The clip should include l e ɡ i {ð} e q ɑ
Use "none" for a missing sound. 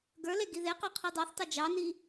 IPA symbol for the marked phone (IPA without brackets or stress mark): ð